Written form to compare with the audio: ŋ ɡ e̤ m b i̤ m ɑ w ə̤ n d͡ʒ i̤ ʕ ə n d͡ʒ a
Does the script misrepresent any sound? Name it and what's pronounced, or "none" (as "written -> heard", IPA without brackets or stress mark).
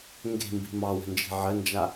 none